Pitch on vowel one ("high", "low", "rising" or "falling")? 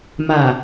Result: low